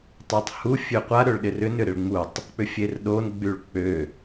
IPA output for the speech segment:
tˤøtˤhu fʲøqʷa ɾøɭɗɪrʏn ʏɾɪɭŋ͡mutˤ | k͡pʏfʲerɗon ɡ͡byɭk͡pø

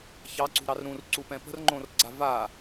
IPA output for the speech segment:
çɑǀṳɾɑr ɾũrǀupɛ̃ pə̤rŋ͡ǃõrɡ͡ǀa va

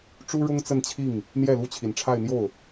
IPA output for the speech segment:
ʈ͡ʂu˥ɻʊ˥ŋ t͡sə˥˧nt͡ɕʰi˥˩ŋ | n̪jɛ˥˩lu˥t͡ɕʰi˨˩nʈ͡ʂʰa˥˧ɪ̯ n̪jo˥˩ʊ̯

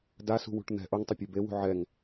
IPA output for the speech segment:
dasṳwṳʈ n̪ɛ̤ ʔoŋtˤɐpʲe bewṳ ʕɛŋ

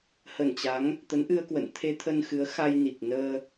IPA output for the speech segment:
hə˧˩nt͡ɕa˨˦ŋ | t̪ə˨˦nʔɨ˧ə̯kwə̰˧˨n t̪ʰe˧t̪ʰə˧nxɨ˨˦ə̯ xa˧jni˨˩k̚nəː˧

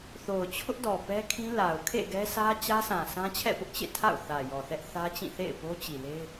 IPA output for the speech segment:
θo˨ʊ̯ t͡ɕʰʊ˦ʔdɔ˨ pɛ˦kʰĩ˦ la˨ʊ̯ kʰḛ˦˨ɡɛ˦sʰä˦ t͡ɕä˦sʰã˨ sã˦t͡ɕʰɛ̰˦˨pʊ˦ʔt͡ɕḛ˦˨ tʰa̰˦˨ʊ̯θä˨jɔ˨θɛ˦ʔ θä˦t͡ɕĩ˦˨ θḛ˦˨ɪ̯po˦t͡ɕi˨le˦ɪ̯

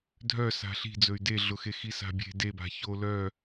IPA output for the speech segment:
dʱœsa̤ ɬi̤d͡zɵy̯ deɮʊxe xisa̤bʲe̤ deba̤ ço lœ

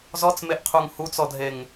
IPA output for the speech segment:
zɔt͡smeʔqʰuŋ hut͡sɔdʱeŋ

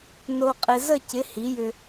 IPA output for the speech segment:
no˧qʼɪ˧ zə˥˩cɪ˩˥ hi˩˥jʏ˧

